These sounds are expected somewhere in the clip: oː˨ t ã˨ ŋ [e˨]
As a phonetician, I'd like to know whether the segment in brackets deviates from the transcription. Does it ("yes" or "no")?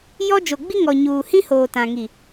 yes